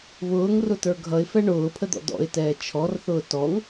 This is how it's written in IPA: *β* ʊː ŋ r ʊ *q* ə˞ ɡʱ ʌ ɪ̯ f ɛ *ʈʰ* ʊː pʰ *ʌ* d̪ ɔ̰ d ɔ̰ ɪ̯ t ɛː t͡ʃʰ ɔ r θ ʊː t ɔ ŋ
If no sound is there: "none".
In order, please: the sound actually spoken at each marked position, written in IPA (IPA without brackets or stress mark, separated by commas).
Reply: β, t, ɳ, ə